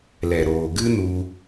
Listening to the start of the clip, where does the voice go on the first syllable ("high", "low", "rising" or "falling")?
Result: low